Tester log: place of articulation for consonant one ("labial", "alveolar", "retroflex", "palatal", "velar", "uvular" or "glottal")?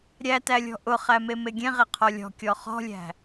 alveolar